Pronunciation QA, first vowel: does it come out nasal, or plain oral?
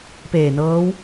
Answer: oral